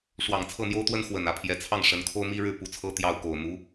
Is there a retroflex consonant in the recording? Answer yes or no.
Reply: yes